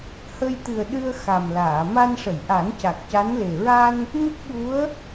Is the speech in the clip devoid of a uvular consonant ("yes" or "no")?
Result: yes